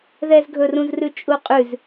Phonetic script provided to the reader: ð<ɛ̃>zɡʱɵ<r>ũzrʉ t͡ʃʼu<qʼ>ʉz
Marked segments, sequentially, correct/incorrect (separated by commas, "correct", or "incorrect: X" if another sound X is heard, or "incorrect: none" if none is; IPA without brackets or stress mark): incorrect: ɛ, correct, correct